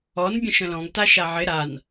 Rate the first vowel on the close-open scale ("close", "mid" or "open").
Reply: mid